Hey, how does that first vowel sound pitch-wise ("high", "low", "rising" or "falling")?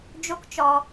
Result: high